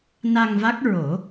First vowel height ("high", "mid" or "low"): low